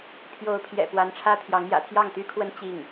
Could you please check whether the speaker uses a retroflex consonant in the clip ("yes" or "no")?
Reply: yes